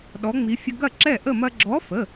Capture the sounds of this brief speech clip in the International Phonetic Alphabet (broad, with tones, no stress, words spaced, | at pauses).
ɗɔ˨˥ŋ͡mi˨˥fʲə˦ ɡɐ˥˨ǁɛ˥˨ʔə˥˨mɐ˦ ɡ͡ǁɔ˨˥fə˩˧˩